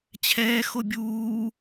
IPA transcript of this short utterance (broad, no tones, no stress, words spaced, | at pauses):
t͡ɕʰɛːxo bʲuː